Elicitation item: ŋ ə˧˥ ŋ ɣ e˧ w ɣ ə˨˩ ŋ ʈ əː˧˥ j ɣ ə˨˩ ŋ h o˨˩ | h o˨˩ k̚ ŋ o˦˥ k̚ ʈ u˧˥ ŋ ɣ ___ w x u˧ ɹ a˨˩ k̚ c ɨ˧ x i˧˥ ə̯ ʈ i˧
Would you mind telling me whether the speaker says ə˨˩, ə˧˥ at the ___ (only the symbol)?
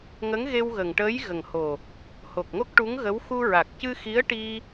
ə˧˥